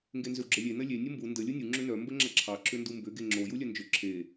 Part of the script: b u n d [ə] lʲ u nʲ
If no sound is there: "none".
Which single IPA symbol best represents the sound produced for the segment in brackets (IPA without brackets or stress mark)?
ə